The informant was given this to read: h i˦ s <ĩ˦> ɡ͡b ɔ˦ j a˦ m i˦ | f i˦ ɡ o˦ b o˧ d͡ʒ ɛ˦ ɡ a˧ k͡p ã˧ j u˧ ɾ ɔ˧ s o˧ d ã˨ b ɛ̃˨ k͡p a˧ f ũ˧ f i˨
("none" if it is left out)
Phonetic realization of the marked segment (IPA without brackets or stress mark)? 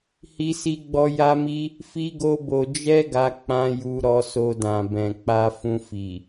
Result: i˦